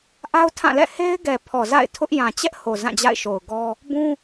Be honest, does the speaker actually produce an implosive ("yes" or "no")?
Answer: no